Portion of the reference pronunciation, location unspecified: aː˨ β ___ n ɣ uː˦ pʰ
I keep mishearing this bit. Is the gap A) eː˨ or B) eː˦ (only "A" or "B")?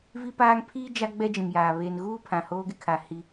A